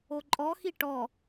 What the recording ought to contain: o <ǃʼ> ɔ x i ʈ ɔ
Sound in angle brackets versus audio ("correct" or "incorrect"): correct